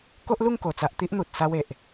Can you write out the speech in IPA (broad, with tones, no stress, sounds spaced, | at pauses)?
k o˦ ʔ l u˥˧ ŋ k o˨˩ t͡s a˨ ʔ t̪ i˦ ʔ n̪ u˨ t̚ s a˧ w e˨ ʔ